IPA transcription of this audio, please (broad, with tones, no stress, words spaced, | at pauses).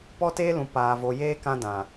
pɔ˦teː˦lũ˨ paː˨vo˨jeː˦ kã˦dã˨